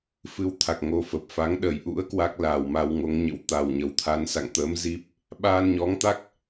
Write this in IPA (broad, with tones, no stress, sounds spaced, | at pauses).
f ɨ˧ w t̪ʰ a˨˩ k̚ ŋ o˨˦ f ə˨˩ p̚ f a˨˦ ŋ ɗ ə˨˩ j ʔ ṵ˧˥ ə̯ k w a˦˥ k̚ l aː˨˩ w m a˧ w ŋ o˨˦ ŋ ɲ ə̰˧˥ w t̪ a˨˩ w ɲ ə˨˩ w t̪ʰ a˨˦ n s a̰˧˨ ŋ t̪ əː˨˦ m z i˦˥ p̚ | ɓ aː˧ n ɲ ɔ˨˦ ŋ t̪ a˦˥ k̚